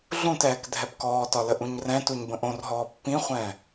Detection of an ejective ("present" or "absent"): absent